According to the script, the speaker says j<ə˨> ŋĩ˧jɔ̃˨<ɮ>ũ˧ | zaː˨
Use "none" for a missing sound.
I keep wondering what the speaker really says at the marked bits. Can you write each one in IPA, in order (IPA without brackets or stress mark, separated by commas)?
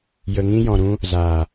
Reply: ə˨, ɾ